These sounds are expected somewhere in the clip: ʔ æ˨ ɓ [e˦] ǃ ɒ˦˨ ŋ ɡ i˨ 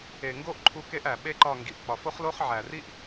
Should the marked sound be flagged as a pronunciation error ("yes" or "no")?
no